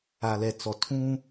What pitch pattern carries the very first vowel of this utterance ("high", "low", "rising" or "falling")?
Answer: low